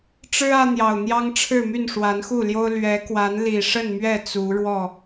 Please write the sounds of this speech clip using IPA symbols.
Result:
ʈ͡ʂ ɻ̩˦ ä˦ n̪ j ɑ˨˩ ʊ̯ n̪ j ɑ˦ ŋ ʈ͡ʂʰ ɻ̩˥˨ m y˥˨ n ʂ w a˨˦ n x u˥˨ l j o˦ ʊ̯ l ɥ ɛ˨˦ k w a˨˦ n l i˨˩ ʂ ə˥˨ n m ɥ ɛ˥˨ t͡s u˨˦ ɻ w ɔ˥˨

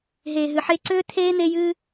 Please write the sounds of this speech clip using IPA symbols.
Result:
ɦ eː˨ ɦ ɨ˨ ħ e˧ ǀ ʏː˦ t̪ʰ eː˦ n̪ e˦ j ɨː˦

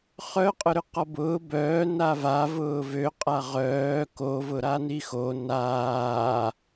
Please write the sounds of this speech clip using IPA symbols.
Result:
χ œ qʼ ʊ ɾ ʏ q ɔ b ʊː b œː n a v a v ʊː v ø qʼ a ʁ œː k o v ʊ ɾ a n i x o n aː

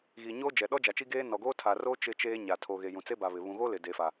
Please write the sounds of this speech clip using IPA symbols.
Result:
ɣ iː˨ ɲ oː˦ d͡ʒ ɛ˨ ɗ ɔ˦ d͡ʒ a˨ t͡ʃ i˦ ɡ eː˦ n ɔ˨ ɡ oː˦ tʰ a˨ r oː˦ t͡ʃ ɪ˦ t͡ʃ eː˦ ɲ a˨ tʰ o˨ ɣ e˨ j ũ˨ t͡s e˦ b a˨ β ɪ˨ β ũ˨ ɣ o˦ l ɪ˨ d e˨ f a˨

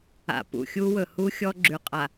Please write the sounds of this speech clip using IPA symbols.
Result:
a̰˨ p ṵ˨ xʲ u˦ w ɵ˨ h u˦ xʲ ɔ˦ ɡ͡ǁ ʉ˨ qʼ a˨

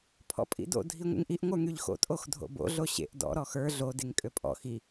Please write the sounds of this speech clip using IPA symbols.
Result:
pʰ ɔ̰ pʼ ḭ d o̰ dʱ i ŋʷ ḛ ŋ ʔ i ʔ ŋʷ ə˞ ŋ y ʎ x o̰ tʼ o x dʱ o̰ b o̰ ɮ o ɕ ḛ ʔ d ɔ̰ ɾ ɔ x ə˞ ɮ o d e ŋ kʼ ø pʼ ɔ̰ x i

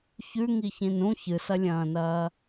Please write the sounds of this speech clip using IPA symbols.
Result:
ç ʉ ŋ i ç ĩ n ũ ç ɨ s ɐ lʲ ɐ̃ː n ɐː

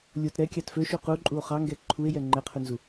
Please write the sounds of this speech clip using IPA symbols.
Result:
lʲ o t ɾ ɛ kʲ ɑ t f ø ʃ u q u ǃʼ u o̯ χ ɑ ŋ ɡ ɛ ǃʰ u e̯ j ɛ ŋ͡ǃ ɛ qʰ ʉ n z u

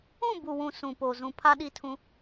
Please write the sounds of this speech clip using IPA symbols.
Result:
ũ˦˨ b u˨ w ũ˨ s ũ˨ p o˨ z ũ˨ pʰ a˦ ɗ i˦ tʰ ũ˦

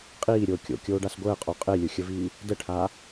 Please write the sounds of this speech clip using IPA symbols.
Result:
qʼ iː ɾʲ oː kʲ o̰ kʲ oː ɖ a s ɡʷ əː qʼ o qʼ e lʲ ʊ xʲ ə v iː | d ə ʈʰ aː

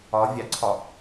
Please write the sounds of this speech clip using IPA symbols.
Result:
ɒ vʲ ɑ ǀʰ ɒ

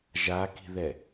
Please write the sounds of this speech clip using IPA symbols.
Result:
ʒ a k i̤ ð ɛ

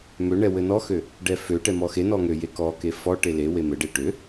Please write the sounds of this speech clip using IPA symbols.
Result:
m ø ɳ ɛ w ɘ n ɔ x ø | ɖ ɛ f ø ʈ ɛ m ɔ x e n ɔ ŋ ø j e k ɔ k e f ɔ ʈ e l e w e m ɘ ɖ e ʈ ø

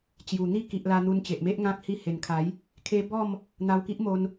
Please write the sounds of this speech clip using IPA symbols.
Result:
t͡ɕ j u˨˩ n̪ i˥˧ k i˨ ʔ l a˧ n̪ u˧ n t͡ɕ e˨ ʔ m e˦ ʔ ŋ ã˦ k̚ h i˧ h e˨˩ n kʰ a˨˦ j | kʰ e˦ b ɔ˥˧ m | n̪ a˧ w k i˦ ʔ m o˧ n

